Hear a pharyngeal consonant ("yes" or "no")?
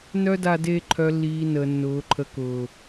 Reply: no